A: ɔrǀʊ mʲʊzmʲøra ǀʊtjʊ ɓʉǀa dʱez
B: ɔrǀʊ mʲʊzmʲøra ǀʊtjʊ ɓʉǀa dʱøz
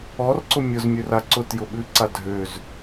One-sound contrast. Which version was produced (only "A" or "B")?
B